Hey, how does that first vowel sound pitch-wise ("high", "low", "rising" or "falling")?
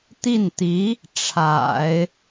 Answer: falling